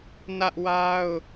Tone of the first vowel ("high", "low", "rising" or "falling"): high